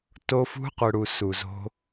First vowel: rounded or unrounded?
rounded